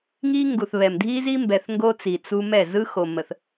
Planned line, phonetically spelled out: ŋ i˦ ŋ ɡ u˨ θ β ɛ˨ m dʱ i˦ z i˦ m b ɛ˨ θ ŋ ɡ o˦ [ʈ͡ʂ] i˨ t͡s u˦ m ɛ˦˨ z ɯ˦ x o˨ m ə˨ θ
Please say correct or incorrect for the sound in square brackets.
incorrect: t͡s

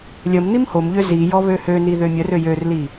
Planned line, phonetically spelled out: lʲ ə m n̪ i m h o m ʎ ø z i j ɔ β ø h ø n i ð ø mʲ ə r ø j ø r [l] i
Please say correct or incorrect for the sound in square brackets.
correct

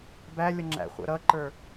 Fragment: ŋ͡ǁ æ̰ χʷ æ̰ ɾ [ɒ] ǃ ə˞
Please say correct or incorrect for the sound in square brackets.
incorrect: ʌ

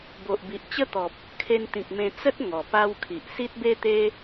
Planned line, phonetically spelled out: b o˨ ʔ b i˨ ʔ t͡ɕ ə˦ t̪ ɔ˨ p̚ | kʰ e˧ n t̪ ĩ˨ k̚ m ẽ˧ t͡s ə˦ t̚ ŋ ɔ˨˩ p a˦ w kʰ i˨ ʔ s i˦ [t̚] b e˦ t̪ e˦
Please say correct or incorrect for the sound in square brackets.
correct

